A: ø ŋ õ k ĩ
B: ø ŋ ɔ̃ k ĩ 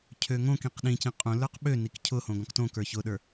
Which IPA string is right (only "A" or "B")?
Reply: A